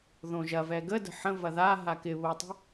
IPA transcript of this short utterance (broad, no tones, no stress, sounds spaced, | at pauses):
ð õ ʒ ɐ v ɛ ɡ ə d ə̤ ħ ə̃ v ɐ ð a ɦ a k ɪ β o tˤ ə̤